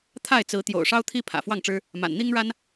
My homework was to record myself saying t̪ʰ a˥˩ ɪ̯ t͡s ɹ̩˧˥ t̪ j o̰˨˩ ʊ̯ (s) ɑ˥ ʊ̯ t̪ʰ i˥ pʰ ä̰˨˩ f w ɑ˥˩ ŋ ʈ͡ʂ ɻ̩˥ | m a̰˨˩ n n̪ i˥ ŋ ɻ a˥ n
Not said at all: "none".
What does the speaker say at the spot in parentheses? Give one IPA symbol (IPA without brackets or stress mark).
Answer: ʂ